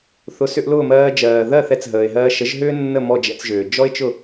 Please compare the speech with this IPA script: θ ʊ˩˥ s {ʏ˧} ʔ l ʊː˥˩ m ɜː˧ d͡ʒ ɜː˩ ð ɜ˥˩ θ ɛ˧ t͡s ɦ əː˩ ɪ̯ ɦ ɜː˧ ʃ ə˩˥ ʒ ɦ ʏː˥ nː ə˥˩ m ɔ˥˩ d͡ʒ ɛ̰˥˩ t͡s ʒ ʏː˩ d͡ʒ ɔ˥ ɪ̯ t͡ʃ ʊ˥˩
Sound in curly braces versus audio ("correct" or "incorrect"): correct